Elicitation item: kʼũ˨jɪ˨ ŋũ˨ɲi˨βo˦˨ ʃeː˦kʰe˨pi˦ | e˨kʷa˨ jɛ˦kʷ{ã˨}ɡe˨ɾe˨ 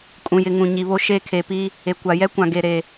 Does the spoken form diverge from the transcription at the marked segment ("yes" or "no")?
no